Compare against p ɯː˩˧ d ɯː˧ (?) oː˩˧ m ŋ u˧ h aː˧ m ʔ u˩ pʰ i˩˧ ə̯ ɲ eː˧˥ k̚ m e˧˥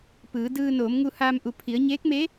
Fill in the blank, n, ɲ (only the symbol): n